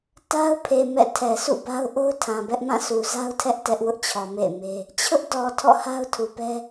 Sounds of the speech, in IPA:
ta˦ʊ̯ pʰe˨ mɛ̰˦˨tʰɛ˨ sṵ˦˨ba˦ʊ̯ ʔo˦ʊ̯tʰã˨bɛ˦ʔ mã˦˨su˨za˦ʊ̯tʰɛ˦ʔ tɛ˦ʔ wʊ˦ʔt͡ɕʰɔ˨ mḛ˦˨ɪ̯me˦ | t͡ɕʰʊ˦ʔdɔ˨ tʰɔ̰˦˨ha˦ʊ̯tʰu˨pɛ˦

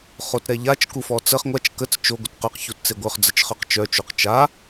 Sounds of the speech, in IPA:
χotɾɛʎat͡ʃ kufɔt͡səχ ŋʷat͡ʃ kət͡s t͡ʃo ɡʷətqøq çutt͡seɡʷœχ d͡zət͡ʃχœqt͡ʃœ t͡ʃoqt͡ʃa

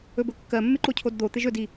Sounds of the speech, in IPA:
ɵbɵkːɜmːɪ ǃocʰodd̪ot̪ɪʒ ɵdi

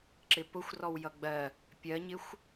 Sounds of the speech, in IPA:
ǁɪpʊxʷ rɔwjʌɡ͡bɜ | pʲɜɲɪxʷ

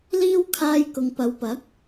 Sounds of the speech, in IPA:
liː˥w kʰaː˧jkʊ˨ŋ pɐ˨˧wpɐ˨˥k̚

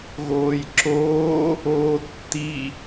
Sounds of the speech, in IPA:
ɣoːjǁoː | oːtːi

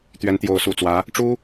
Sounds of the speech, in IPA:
t̪ɥɛ˧˥nt̪jo˧˥ʊ̯sṵ˨˩t͡swä˧˥ | ʈ͡ʂu˥

